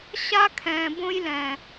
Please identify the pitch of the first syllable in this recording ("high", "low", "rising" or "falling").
high